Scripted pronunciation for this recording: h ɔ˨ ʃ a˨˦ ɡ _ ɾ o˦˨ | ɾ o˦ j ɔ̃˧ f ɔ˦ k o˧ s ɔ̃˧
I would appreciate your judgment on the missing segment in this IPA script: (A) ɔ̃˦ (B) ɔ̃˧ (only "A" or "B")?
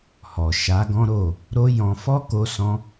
A